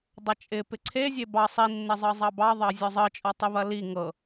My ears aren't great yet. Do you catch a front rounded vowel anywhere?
no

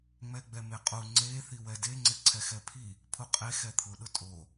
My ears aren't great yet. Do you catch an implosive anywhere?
yes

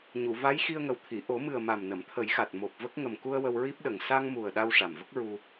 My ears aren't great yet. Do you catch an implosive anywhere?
yes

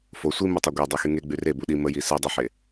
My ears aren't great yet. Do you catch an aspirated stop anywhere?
no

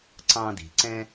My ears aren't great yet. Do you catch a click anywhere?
yes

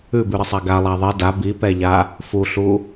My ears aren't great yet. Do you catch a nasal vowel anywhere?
no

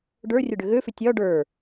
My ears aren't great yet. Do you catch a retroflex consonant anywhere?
yes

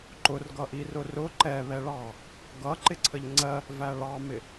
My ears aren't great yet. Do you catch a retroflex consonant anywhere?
yes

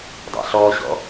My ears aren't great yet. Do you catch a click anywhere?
no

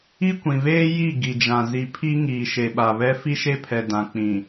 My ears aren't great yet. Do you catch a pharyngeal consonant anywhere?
no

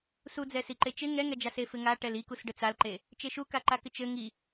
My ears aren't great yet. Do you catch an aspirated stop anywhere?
no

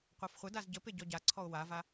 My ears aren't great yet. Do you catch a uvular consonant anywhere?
yes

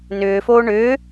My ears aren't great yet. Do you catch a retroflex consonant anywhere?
yes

